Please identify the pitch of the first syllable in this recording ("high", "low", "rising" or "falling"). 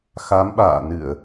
rising